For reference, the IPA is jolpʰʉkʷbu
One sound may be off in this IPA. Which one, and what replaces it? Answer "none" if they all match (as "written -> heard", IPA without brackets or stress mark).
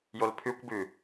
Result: u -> ʉ